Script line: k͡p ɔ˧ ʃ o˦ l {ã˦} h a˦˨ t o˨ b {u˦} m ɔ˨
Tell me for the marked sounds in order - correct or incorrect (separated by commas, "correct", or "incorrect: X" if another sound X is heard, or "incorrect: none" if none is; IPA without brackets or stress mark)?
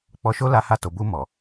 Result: incorrect: a˦, incorrect: u˧